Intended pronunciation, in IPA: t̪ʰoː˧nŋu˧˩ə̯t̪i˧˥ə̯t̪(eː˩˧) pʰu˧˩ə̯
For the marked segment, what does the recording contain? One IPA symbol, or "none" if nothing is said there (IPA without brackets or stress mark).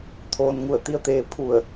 eː˧